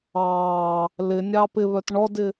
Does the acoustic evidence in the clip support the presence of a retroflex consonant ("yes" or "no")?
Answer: yes